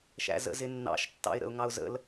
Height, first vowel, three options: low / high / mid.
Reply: low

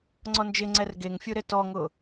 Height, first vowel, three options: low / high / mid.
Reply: mid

